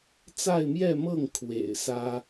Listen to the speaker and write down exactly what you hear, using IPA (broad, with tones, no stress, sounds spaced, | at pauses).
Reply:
t͡s a˥˧ ɪ̯ m j ɛ˥˧ m ɤ˥˩ ŋ kʰ w ḛ˨˩ ɪ̯ s ä˥